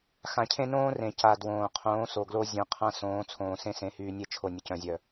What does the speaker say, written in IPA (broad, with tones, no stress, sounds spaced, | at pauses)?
x ã˨ cʰ ẽ˦ n õː˦ r ẽ˨ c a˨ d w õː˨ qʰ õː˨˦ s o˨ ɡ l o˦ zʲ œ̃˨˦ qʰ ã˦ s õː˨˦ t͡sʰ õː˨ s ẽ˦ s ẽ˨˦ h yː˨ nʲ e˦˨ t͡ʃʰ o˨ nʲ ə˨ c œ̃˨ zʲ œ˨